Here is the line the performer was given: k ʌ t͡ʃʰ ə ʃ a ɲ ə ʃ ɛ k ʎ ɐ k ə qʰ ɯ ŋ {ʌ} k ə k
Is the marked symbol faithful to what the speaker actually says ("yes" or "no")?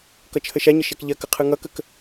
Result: yes